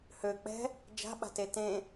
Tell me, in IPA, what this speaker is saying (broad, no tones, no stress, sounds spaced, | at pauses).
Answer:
h ø k͡p ɛ̤ | d͡ʒ a̤ ɓ a̤ t e t ẽ